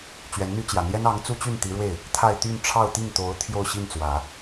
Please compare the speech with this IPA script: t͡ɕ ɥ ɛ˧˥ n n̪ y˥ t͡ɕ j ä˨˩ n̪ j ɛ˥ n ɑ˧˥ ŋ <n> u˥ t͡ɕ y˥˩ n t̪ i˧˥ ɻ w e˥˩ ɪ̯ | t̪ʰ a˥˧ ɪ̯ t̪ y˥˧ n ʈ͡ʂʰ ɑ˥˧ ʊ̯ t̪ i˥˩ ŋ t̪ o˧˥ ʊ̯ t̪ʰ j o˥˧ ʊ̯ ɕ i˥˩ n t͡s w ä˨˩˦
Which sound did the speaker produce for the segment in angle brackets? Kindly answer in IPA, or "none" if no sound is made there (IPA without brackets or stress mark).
t͡s